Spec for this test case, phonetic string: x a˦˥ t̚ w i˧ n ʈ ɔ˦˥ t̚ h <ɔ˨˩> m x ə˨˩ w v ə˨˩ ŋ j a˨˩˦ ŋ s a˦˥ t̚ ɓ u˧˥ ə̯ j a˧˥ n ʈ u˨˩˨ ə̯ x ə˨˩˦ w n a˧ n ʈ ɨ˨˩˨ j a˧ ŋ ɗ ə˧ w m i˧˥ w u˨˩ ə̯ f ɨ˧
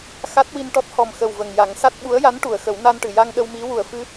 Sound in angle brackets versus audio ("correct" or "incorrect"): correct